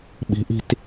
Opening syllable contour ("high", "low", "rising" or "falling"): rising